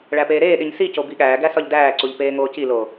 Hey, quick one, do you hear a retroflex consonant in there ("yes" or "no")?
yes